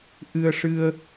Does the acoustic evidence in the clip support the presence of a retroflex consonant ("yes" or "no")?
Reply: yes